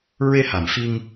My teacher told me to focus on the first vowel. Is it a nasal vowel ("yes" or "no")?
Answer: no